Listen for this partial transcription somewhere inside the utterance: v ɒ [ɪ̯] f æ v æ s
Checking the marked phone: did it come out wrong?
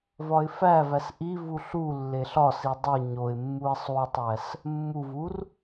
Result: no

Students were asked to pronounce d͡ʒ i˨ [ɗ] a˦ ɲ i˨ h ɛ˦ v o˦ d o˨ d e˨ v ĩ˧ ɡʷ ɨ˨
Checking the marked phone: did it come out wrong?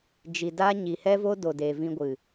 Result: yes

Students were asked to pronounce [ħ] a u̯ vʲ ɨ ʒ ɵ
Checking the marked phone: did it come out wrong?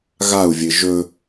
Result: yes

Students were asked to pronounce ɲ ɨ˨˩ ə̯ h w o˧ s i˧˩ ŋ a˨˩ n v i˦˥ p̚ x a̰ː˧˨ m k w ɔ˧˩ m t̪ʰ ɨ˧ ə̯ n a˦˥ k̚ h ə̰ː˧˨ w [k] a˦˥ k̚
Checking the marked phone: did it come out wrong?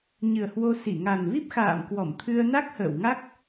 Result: yes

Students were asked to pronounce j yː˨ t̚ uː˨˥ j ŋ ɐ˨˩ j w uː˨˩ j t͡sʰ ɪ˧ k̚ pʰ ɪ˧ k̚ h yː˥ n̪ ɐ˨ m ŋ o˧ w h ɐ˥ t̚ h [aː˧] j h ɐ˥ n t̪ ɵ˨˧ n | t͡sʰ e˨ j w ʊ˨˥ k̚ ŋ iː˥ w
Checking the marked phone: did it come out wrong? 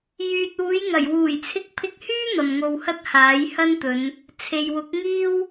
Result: yes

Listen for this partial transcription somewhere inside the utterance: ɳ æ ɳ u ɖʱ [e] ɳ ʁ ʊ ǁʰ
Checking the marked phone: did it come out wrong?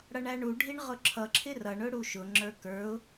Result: yes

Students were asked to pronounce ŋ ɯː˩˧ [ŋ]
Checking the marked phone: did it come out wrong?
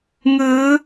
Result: yes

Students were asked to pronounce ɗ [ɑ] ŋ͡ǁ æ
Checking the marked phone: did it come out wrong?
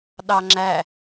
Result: no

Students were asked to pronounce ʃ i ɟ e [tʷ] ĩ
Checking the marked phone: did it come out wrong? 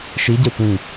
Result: no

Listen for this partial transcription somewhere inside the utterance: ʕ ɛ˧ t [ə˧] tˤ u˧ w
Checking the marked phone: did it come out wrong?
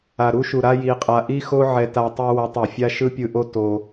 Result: yes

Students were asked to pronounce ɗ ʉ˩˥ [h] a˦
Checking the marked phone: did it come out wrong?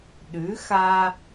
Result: yes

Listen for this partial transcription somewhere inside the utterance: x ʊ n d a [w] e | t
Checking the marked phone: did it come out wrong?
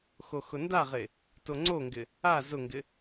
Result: yes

